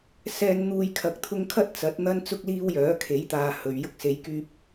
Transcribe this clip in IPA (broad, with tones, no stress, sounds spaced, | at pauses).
s ɛː˧ n n̪ uː˨ j kʰ ɐ˨˥ k̚ t̪ʰ ʊ˧ ŋ kʰ ɐ˥ t̚ t͡s ɐ˨˥ t̚ n̪ ɐ˥ n t͡s ʊ˧ k̚ l iː˧ w j œː˨˥ kʰ e˨˥ j t̪ aː˨ h ɵ˨ ɥ j ʊ˧ k̚ s e˨˧ j k yː˧ p̚